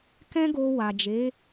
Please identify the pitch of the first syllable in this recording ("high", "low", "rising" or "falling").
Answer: high